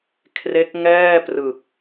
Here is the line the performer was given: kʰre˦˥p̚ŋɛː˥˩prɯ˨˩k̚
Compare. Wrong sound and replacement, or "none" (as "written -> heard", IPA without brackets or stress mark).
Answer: p̚ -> k̚